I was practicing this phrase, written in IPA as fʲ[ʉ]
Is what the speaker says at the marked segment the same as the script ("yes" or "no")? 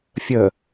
no